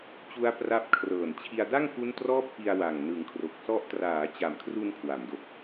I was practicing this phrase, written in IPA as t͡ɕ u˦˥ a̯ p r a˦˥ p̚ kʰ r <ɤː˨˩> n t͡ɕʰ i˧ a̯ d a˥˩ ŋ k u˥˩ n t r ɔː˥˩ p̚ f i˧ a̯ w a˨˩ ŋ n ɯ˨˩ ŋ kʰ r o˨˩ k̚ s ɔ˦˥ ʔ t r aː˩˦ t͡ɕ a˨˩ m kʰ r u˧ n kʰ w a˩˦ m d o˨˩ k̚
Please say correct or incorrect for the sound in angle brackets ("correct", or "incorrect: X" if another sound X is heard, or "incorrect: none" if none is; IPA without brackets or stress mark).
correct